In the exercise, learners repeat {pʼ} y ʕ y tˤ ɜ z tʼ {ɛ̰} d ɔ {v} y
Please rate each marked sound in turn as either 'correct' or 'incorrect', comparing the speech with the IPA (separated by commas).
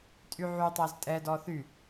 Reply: incorrect, incorrect, incorrect